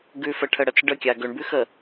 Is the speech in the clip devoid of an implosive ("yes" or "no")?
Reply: yes